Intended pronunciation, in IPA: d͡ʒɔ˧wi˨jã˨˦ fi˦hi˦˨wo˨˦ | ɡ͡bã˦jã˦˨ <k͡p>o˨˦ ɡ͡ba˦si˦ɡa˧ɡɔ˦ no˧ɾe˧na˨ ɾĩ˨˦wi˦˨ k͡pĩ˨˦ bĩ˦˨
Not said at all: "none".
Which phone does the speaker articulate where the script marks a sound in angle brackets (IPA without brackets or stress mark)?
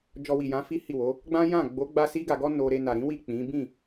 ɡ͡b